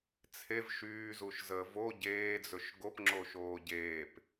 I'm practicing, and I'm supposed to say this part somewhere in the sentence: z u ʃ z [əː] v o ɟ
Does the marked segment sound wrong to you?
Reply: no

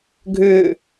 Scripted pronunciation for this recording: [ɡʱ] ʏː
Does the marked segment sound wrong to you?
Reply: no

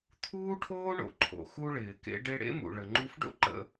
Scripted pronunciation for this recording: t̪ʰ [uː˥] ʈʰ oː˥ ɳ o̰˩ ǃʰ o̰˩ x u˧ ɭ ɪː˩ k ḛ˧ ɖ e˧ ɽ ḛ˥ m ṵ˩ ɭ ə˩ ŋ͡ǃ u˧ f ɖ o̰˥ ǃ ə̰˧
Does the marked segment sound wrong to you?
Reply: no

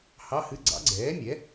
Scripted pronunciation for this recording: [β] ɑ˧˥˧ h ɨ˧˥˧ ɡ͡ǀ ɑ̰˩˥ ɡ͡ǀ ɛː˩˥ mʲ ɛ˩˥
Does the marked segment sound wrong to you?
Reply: yes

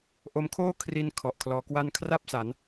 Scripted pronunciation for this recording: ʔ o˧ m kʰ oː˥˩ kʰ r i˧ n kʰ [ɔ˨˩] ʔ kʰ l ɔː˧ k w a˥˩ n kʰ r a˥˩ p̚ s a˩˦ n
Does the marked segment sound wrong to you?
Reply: no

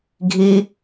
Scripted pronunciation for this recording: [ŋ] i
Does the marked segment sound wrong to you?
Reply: yes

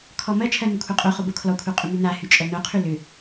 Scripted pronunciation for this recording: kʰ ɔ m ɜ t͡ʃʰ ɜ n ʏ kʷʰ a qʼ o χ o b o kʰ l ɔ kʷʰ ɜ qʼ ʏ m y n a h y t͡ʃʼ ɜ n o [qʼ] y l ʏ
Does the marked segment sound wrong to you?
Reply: yes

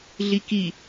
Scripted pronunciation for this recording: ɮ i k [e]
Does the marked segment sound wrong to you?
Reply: yes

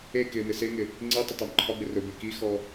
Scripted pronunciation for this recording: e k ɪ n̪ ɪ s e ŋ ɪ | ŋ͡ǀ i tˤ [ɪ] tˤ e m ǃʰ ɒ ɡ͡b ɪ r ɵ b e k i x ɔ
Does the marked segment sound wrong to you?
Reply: no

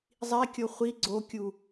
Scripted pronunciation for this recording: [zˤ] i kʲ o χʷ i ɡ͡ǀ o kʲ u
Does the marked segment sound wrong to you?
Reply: no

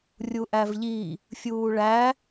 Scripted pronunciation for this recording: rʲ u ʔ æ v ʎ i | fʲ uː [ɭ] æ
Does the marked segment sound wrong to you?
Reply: no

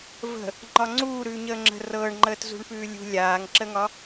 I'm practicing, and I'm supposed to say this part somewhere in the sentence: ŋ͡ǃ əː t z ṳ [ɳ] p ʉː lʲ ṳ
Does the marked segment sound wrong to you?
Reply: no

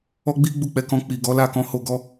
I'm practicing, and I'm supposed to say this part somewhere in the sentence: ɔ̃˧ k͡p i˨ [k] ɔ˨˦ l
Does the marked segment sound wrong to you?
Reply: yes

